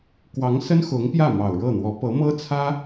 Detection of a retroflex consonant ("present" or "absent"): present